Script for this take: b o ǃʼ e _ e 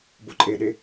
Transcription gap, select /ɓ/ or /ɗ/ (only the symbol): ɗ